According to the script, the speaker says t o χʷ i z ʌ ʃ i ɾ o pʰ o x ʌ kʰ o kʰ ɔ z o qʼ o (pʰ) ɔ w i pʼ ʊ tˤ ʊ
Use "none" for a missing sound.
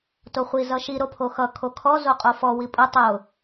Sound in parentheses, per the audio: f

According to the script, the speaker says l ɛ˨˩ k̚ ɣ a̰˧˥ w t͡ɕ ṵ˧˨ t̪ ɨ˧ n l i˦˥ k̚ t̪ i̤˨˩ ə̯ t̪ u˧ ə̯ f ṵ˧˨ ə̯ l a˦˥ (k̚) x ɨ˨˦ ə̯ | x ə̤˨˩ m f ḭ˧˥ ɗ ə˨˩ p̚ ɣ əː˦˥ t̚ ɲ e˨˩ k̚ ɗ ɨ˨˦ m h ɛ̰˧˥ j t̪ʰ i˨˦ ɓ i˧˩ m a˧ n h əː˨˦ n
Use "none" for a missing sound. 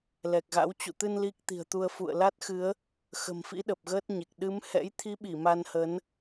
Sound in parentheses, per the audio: t̚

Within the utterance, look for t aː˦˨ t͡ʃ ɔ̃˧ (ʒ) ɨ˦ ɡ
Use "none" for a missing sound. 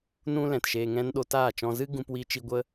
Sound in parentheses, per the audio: z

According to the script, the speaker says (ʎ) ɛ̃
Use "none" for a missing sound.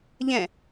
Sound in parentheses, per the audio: ʎ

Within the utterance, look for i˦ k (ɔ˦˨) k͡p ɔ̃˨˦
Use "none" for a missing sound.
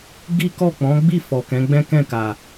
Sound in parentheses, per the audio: ɔ˦˨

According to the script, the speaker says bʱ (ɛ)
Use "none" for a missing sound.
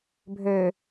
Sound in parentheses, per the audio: ø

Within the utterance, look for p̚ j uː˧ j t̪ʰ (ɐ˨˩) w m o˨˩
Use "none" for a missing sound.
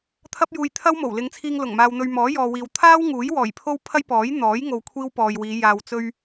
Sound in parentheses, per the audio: ɐ˥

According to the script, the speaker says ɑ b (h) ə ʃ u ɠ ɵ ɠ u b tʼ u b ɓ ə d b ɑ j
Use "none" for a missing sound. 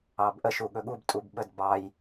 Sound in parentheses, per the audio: ʔ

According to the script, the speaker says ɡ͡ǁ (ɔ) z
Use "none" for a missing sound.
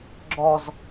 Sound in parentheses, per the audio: ɔ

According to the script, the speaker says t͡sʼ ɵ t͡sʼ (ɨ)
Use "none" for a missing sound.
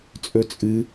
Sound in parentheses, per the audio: ɨ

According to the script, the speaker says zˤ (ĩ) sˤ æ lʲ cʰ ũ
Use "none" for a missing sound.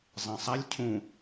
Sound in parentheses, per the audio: ĩ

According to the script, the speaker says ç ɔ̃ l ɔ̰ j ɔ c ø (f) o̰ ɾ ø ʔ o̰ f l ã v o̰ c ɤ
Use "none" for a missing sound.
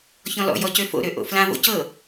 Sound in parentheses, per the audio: f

